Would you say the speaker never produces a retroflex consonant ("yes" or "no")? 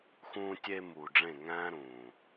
no